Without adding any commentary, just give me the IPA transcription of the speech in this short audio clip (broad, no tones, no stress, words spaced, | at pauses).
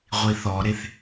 ʁʷiθɔɾeθ